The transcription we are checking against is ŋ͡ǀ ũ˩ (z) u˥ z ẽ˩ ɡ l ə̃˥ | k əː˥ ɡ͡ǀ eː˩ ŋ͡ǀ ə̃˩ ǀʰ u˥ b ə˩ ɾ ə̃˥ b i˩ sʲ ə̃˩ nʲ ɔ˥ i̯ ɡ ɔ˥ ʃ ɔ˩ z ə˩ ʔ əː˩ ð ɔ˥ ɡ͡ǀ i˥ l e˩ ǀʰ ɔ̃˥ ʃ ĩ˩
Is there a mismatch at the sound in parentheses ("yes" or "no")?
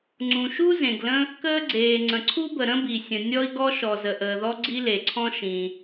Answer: yes